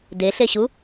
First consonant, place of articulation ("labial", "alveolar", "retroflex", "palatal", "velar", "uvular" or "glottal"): alveolar